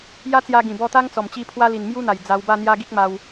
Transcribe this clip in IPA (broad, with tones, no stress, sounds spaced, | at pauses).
j a˦ t͡s j a˧ ɡ ĩ˨˩ b ɔ˧ t̪ a˦ ŋ t͡s ɔ˨˩ m t͡ɕ i˧ pʰ w a˦ l i˨˩ n m j u˦ n̪ a˨˩ j d͡z a˧ w b a˥˧ n̪ j a˦ ɡ i˦ k̚ m a˧ w